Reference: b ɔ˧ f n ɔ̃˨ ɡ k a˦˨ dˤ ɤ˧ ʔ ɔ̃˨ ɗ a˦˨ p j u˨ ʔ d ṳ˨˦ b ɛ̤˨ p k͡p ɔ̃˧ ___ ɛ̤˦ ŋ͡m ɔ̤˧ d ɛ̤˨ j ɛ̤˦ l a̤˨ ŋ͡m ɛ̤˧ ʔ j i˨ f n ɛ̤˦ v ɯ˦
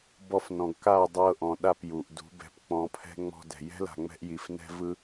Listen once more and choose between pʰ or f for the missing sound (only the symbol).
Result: pʰ